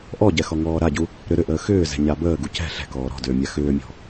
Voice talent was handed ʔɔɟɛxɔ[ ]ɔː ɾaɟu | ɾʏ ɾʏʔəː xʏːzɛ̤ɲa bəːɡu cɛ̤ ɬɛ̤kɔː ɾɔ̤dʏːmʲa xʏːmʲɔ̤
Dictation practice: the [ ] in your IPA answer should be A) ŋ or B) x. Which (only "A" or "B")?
A